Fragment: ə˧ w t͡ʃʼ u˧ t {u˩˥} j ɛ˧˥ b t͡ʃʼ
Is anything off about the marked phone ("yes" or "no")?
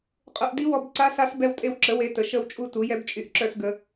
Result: no